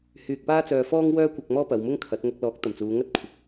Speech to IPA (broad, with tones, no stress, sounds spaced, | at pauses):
h yː˧ k̚ p aː˥ t͡s œː˧ f ɔː˥ ŋ w œː˥ kʷ ɐ˧ k̚ m ɔː˥ p ɐ˨˧ w m ʊ˥ ŋ kʰ ɐ˨˥ t̚ ŋ ɐ˧ k̚ l ɔː˨˥ k̚ t̪ ɐ˨˩ m t͡s uː˨˧ ŋ ɐ˥ t̚ kʷʰ ɪ˨ k̚